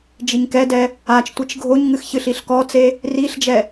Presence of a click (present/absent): absent